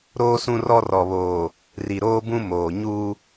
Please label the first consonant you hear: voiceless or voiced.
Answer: voiced